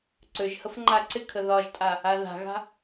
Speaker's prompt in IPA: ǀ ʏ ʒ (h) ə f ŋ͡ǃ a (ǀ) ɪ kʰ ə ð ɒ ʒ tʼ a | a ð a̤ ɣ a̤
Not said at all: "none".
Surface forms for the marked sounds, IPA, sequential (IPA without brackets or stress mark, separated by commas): h, ǀ